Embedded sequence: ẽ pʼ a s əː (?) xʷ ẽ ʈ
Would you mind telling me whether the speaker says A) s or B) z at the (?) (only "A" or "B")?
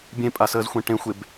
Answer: B